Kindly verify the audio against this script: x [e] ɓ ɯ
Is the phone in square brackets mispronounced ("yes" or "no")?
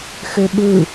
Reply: yes